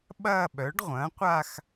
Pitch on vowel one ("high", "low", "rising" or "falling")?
falling